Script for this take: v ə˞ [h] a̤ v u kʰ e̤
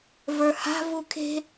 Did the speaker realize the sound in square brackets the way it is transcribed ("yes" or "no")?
yes